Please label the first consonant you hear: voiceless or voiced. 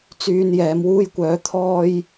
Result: voiceless